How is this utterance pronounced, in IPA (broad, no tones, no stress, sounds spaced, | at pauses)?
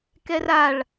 k ɛ r a ɭ